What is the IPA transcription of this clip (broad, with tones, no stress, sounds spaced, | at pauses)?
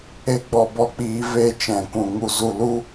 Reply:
e˦ ɡ͡b ɔ˧ b ɔ˦ k͡p iː˧ v e˦˨ t͡ʃ ɛ̃˨ kʷ ũ˨ ŋ u˨ z u˨ l u˦